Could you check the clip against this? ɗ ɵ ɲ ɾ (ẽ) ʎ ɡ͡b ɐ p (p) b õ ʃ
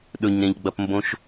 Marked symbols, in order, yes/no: yes, no

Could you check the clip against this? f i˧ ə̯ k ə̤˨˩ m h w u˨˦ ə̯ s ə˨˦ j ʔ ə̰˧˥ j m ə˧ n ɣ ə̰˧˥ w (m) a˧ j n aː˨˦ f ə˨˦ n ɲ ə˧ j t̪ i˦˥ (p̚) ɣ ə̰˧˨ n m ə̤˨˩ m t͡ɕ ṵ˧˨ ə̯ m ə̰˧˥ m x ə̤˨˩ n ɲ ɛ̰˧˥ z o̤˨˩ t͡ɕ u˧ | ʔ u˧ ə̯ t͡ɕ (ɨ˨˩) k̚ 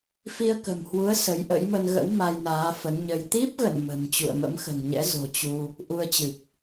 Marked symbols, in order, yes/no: yes, yes, yes

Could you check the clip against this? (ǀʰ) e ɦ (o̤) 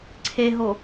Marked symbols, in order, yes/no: yes, no

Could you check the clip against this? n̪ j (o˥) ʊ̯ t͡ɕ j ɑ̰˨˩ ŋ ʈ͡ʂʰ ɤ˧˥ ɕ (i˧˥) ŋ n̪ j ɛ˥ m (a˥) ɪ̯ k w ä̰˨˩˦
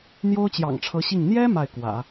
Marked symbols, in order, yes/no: yes, no, no

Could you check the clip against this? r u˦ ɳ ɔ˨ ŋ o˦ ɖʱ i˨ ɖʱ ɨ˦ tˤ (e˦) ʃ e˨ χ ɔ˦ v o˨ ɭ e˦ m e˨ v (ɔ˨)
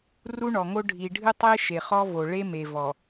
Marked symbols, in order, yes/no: yes, yes

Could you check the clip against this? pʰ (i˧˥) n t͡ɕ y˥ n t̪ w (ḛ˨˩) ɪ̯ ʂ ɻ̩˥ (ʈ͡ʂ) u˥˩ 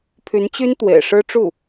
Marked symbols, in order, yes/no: no, yes, yes

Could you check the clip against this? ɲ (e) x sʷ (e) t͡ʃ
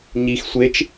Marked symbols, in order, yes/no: no, yes

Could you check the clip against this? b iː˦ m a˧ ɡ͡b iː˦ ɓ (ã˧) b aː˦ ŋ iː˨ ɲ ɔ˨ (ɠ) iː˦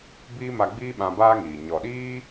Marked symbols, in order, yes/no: yes, no

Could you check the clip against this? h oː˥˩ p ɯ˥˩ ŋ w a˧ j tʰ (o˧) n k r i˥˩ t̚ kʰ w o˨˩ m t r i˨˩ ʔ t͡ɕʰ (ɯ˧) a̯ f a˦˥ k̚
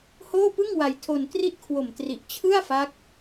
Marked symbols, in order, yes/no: yes, no

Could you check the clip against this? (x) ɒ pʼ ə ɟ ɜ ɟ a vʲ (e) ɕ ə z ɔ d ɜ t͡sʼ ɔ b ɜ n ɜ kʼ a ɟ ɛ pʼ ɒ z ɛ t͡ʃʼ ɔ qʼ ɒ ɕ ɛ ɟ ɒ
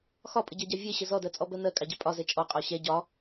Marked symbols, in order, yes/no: yes, yes

